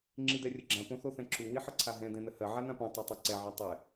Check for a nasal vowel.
present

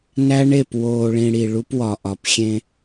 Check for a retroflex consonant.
present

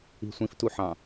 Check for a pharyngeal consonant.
present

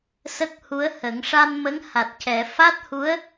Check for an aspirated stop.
absent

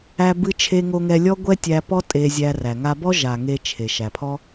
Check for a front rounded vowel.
absent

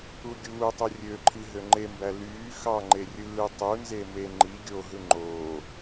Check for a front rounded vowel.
present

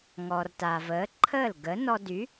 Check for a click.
present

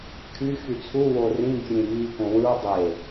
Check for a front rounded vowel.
present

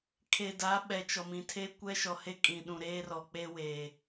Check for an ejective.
present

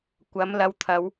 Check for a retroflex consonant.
absent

